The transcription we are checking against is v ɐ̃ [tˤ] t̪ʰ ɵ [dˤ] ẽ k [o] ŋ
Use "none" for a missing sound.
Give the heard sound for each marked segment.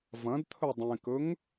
d, dˤ, ɵ

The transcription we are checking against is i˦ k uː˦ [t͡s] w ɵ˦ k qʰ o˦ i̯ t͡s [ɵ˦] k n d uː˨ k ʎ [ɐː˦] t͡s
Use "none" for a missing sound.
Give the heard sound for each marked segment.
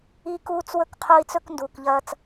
t͡s, ɵ˦, ɐː˦

